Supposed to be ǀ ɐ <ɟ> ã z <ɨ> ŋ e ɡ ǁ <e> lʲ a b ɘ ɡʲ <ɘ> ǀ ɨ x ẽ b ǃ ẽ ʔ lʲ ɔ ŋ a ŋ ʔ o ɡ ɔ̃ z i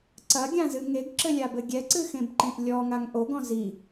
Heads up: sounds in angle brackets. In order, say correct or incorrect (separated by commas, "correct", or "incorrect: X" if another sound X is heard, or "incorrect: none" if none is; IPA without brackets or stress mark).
incorrect: ɡʲ, correct, incorrect: ɘ, incorrect: ɛ